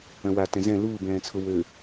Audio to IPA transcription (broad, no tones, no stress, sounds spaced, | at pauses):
œ̃ w a t ɛ̃ z ɛ̃ l uː b ɛ̃ː t͡sʰ ʊ w ø